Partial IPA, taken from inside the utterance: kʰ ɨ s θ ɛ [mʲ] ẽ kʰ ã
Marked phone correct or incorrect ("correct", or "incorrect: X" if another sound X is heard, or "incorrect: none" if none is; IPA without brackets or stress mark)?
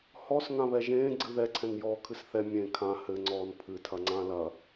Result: correct